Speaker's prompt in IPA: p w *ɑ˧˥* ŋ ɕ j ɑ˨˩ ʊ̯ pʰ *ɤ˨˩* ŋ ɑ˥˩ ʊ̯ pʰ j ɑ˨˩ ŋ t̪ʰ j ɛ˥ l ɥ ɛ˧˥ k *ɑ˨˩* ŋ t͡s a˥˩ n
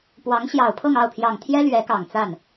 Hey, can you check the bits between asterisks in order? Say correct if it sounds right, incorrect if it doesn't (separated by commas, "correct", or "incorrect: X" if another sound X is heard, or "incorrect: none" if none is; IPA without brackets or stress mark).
correct, incorrect: ɤ˥˧, correct